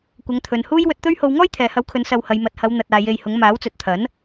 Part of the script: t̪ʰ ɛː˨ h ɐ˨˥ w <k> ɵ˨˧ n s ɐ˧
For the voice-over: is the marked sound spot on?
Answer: no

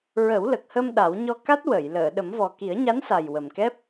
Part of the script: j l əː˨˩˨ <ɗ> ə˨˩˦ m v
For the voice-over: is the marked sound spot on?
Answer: yes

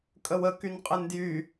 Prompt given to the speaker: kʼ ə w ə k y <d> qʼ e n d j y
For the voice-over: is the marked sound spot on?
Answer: no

